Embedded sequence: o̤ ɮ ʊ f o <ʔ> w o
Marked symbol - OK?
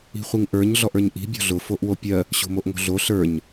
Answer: yes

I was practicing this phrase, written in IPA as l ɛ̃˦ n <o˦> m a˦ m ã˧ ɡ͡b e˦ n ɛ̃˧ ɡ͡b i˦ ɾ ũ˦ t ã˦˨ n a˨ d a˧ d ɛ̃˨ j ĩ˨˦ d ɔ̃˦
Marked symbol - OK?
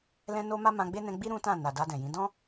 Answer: yes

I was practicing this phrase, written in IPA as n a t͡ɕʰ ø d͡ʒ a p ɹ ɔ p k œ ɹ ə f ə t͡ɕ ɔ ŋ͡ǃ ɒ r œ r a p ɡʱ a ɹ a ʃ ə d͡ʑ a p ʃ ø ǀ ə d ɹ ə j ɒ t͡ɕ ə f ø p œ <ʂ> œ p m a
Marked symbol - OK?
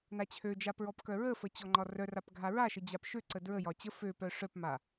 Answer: yes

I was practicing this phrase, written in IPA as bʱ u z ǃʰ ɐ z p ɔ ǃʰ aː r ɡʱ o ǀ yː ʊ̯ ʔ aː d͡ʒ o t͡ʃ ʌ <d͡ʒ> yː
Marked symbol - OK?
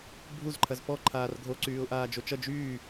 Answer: yes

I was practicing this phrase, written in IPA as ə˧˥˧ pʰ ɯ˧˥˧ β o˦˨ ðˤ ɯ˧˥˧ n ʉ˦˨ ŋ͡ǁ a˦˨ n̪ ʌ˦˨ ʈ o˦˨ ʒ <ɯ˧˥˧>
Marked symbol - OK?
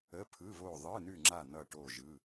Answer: yes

